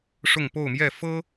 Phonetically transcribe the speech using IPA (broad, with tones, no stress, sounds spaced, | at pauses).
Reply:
ʂ ʊ˥˧ ŋ p o˥˧ ʊ̯ m j ɛ˥˩ f ɤ˥